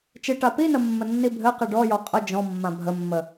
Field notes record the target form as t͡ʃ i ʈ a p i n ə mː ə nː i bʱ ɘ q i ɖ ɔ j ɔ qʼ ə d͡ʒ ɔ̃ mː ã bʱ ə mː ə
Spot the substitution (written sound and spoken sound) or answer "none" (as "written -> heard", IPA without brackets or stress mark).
none